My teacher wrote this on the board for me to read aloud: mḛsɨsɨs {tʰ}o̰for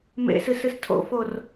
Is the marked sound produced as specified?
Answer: yes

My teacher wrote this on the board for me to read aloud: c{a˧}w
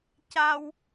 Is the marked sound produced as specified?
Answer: yes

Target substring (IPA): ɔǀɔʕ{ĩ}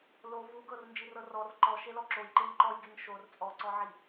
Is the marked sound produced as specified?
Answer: no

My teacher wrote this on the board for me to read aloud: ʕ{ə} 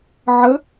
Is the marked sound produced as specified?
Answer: yes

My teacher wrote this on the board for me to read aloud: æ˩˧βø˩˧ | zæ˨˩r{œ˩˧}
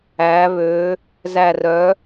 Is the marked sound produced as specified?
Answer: yes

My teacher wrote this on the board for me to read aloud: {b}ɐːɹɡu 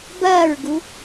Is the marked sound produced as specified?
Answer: yes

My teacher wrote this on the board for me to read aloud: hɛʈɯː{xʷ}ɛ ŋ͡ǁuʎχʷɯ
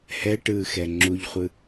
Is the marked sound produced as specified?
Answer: no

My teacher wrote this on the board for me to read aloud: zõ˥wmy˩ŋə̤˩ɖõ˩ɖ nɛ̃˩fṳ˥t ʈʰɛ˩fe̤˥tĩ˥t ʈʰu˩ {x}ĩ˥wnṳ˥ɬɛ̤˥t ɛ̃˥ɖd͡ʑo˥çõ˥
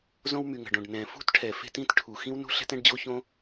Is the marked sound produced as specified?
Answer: yes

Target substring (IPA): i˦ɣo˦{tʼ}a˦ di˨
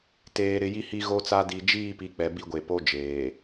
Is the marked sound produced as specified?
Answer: no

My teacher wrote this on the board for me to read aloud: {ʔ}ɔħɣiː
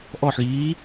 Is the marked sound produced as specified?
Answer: yes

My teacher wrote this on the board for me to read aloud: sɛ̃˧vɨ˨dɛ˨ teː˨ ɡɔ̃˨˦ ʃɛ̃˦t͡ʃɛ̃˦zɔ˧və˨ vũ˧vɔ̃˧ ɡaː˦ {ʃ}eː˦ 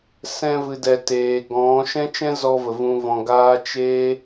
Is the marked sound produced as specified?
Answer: no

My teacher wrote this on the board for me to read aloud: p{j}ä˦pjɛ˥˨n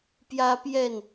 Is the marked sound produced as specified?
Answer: yes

